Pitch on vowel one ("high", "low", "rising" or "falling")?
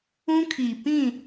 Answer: high